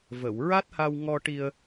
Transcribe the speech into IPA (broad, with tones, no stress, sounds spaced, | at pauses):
v ə˨˩˨ w ɹ a˦˥ t̚ h a˧ w ŋ ɔ˧ ʈ i˧ ə̯